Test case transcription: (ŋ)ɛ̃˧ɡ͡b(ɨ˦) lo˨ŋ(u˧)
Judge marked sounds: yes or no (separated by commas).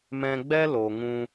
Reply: no, no, no